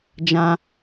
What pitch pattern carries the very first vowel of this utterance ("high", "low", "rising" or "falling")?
high